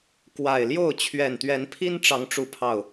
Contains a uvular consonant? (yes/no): no